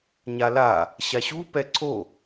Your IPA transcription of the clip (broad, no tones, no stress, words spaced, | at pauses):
ɲala | ɕaɕu pɛǀʰo